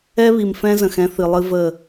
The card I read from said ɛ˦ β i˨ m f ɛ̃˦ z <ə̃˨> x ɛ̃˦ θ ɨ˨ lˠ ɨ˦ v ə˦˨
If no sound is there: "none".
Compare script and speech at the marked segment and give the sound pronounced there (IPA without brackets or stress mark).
ə̃˨